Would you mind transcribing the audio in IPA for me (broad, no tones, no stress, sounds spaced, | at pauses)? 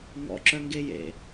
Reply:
ŋ ɔ̰ ǁ œ ŋ ɡ e j ḛ